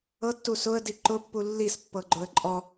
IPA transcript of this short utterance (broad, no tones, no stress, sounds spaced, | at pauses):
ɤ tː u s ʊ ə̯ d i ǃ ʊ pː u lː i s pː ɤ ɡ͡ǃ ʊ ə̯ ǃʼ ɔ